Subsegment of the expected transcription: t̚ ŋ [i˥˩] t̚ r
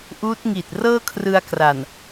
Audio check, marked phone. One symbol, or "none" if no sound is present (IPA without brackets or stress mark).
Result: i˨˩